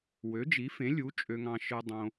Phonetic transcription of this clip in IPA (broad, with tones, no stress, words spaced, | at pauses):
wø˨˥d͡ʒi˨˥fẽ˨˥ lʲu˨˥ t͡ʃʼø˧ŋɑ̃˧ ʃɯ˧ dˤõ˧